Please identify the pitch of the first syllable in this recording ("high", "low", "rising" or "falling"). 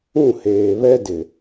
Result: falling